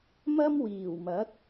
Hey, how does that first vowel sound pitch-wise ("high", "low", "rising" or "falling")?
high